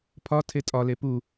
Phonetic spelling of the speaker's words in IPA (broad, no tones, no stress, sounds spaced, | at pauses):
pʰ ɒ tʰ e tʼ ɒ l e p u